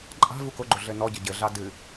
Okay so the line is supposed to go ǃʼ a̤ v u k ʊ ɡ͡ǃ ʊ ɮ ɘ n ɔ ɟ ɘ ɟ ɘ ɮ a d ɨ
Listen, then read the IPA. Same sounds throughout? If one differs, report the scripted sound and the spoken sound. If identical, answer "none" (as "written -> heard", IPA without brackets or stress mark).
none